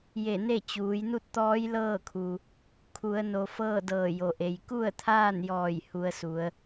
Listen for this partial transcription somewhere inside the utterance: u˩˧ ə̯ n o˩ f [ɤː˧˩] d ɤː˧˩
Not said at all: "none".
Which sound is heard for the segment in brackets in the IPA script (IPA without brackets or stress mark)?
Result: ɤː˥˨